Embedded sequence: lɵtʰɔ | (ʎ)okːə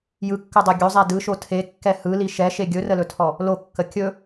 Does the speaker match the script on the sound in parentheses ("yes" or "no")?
no